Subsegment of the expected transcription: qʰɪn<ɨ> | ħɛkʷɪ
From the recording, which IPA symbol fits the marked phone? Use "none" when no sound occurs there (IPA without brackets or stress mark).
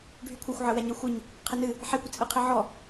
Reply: ɨ